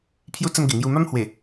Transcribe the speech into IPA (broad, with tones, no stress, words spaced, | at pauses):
pʰju˧t͡sə˧m ɡe˨˩ŋju˧ ma˦mhwe˨˩